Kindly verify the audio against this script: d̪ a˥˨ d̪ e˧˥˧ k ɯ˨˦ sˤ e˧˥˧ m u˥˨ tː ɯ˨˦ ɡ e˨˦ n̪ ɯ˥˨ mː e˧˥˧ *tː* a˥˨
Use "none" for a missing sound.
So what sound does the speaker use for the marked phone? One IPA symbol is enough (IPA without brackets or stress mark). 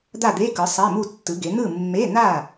n̪